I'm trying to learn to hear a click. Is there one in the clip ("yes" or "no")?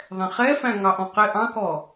no